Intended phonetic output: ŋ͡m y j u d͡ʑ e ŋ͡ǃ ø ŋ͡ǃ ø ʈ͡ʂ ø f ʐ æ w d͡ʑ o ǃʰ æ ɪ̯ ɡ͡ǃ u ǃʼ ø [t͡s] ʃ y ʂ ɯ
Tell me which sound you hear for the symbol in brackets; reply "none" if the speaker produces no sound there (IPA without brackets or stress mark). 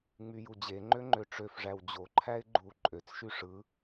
t͡s